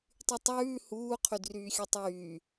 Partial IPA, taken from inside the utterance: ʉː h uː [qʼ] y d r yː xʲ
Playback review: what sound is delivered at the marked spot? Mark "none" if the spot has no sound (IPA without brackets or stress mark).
qʰ